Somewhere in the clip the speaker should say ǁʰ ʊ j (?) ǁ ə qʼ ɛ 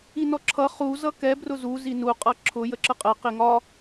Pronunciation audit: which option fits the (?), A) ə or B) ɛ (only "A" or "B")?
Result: A